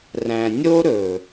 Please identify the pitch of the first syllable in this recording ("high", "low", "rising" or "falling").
low